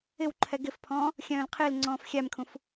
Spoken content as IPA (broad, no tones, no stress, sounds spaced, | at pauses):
ɪ w ǃʰ ɛ ɡ ɪ f pʰ ɔ̃ː | xʲ œ̃ː l qʰ ɪː l ŋ͡ǀ ɔ̃ː f xʲ æ m kʰ ũ f